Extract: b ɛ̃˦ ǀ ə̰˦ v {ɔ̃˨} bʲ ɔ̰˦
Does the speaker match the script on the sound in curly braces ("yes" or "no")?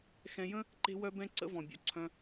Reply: yes